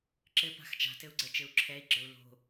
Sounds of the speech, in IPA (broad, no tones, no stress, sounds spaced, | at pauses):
ǁ ɘ p a̤ x t͡ʃ a̤ t ɘ u̯ ɡ͡ǀ ɛ t͡ʃ ɘ u̯ ǁʰ ɛ i̯ ɡ͡ǁ ə˞ u̯ l o̤